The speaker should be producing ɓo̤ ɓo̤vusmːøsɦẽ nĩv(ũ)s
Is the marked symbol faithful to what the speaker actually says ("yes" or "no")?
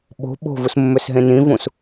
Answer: yes